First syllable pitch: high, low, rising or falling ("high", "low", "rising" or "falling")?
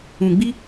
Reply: low